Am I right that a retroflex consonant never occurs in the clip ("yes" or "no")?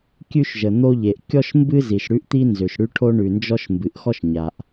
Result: no